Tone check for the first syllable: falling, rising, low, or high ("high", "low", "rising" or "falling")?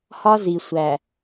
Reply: high